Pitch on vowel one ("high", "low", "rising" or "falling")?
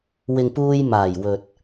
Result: low